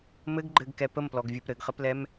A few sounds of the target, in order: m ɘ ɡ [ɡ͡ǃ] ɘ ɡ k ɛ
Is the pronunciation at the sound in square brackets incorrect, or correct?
correct